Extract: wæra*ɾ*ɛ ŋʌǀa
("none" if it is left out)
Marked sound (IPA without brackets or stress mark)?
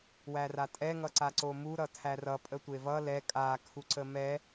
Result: tʼ